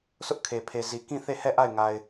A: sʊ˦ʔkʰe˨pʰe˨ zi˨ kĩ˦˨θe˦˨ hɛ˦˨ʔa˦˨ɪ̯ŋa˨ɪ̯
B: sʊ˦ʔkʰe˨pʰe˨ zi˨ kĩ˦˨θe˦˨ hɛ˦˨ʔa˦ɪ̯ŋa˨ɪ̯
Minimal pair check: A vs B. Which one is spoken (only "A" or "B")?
A